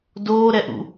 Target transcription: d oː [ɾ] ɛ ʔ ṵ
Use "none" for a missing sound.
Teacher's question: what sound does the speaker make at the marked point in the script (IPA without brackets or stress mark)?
ɾ